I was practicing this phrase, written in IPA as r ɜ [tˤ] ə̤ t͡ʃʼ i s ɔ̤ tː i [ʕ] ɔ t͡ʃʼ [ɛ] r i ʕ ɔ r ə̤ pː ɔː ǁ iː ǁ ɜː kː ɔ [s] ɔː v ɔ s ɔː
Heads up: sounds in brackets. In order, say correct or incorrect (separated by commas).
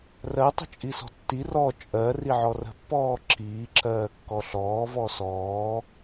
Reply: correct, incorrect, incorrect, incorrect